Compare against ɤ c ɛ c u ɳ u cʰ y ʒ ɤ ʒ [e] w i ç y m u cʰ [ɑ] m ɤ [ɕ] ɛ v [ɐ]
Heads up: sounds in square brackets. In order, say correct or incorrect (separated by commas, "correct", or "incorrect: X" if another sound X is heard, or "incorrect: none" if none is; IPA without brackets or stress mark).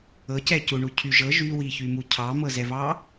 incorrect: y, correct, incorrect: z, incorrect: ɑ